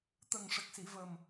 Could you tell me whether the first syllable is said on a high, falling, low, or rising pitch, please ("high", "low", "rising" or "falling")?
low